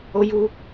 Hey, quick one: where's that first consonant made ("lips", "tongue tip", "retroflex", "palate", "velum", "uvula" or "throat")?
palate